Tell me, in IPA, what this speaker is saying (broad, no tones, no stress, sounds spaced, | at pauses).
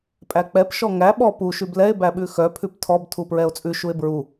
pʼ æ k͡p ɛ p ʃ ɔ ŋ æ ɓ ɔ p u ʃ ʉ b l ɛ e̯ b æ ɓ ʉ x œ pʰ ʉ p tʰ ɔ b tʰ u p ɹ ɛ o̯ t͡sʼ ʉ ʃ u e̯ b ɹ u